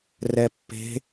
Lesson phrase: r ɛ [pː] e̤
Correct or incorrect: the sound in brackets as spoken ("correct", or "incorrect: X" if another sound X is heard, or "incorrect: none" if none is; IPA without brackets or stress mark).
correct